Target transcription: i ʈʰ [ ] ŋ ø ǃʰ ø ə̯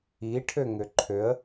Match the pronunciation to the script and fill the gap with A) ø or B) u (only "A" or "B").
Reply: A